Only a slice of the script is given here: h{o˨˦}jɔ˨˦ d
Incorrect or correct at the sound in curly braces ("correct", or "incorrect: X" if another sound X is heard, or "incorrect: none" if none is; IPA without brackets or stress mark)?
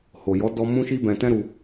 incorrect: o˨